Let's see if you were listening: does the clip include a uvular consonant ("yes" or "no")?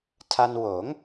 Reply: no